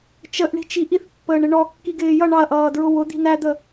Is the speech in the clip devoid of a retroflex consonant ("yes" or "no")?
no